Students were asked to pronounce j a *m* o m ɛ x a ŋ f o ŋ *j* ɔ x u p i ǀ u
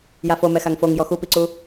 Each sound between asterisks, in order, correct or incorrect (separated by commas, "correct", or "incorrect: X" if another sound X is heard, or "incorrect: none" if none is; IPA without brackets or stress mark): incorrect: f, correct